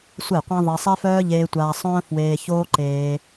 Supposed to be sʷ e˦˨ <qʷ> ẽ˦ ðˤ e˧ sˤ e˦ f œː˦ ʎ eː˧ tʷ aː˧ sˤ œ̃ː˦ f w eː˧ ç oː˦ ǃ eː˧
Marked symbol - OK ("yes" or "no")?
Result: yes